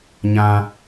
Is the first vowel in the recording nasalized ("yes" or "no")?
yes